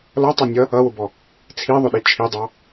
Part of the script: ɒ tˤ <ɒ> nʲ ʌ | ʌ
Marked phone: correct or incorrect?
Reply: incorrect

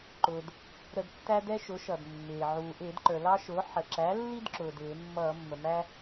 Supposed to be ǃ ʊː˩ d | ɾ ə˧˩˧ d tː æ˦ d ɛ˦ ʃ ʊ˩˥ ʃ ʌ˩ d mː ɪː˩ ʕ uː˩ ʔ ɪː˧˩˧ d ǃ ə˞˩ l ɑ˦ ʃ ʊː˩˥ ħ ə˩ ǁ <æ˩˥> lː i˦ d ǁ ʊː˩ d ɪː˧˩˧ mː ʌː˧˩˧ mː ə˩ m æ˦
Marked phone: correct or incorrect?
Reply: correct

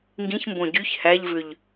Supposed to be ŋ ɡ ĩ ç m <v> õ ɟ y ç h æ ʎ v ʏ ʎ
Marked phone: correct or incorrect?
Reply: incorrect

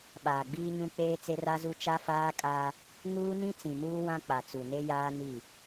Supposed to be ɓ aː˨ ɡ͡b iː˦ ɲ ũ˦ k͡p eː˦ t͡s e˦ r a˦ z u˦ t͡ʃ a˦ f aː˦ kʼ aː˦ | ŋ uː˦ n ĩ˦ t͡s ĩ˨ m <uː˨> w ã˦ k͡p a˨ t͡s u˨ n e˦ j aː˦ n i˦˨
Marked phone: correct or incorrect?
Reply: incorrect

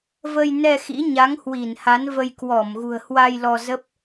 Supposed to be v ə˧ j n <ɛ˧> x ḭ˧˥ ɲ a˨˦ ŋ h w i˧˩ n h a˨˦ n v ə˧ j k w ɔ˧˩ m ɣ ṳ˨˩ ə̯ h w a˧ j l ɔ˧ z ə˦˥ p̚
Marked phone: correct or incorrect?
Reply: correct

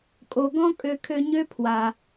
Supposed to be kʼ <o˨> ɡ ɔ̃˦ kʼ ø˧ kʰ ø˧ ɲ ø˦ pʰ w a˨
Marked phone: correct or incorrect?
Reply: correct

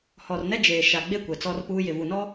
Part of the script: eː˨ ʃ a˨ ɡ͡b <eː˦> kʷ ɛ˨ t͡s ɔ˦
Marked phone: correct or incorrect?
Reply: incorrect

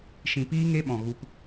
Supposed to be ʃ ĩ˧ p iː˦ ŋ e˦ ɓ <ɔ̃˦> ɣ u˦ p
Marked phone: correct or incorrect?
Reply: incorrect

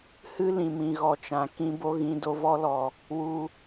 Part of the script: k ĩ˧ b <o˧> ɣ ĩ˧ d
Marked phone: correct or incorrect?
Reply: correct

